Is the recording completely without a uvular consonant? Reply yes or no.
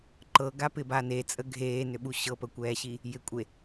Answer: yes